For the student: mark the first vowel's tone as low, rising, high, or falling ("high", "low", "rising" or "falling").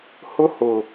high